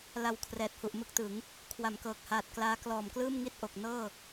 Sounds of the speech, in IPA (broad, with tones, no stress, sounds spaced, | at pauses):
l a˨˩ w kʰ r ɛː˨˩ t̚ h u˨˩ ʔ m ɯ˦˥ k̚ t ɯ˩˦ ŋ | kʰ w a˩˦ m k ɤː˨˩ k̚ h aː˨˩ t̚ k l aː˦˥ k l ɔː˨˩ m k l ɯː˥˩ m ŋ i˥˩ t̚ ʔ o˨˩ k̚ n ɤː˥˩